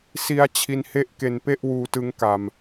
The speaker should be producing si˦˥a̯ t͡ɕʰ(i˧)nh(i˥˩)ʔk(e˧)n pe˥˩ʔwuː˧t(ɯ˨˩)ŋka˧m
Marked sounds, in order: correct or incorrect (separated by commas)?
correct, incorrect, correct, incorrect